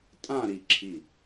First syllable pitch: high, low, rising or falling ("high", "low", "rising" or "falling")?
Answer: falling